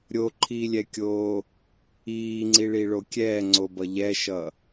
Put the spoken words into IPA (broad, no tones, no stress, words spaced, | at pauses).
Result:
ɾʲoǃʰiːlʲɛkʲoː | iːŋ͡ǀiɭiɭo kʲɛːŋ͡ǀobʌ ʎɛʃʌ